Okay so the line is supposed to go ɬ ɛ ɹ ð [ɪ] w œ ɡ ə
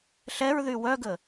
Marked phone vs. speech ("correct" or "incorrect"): incorrect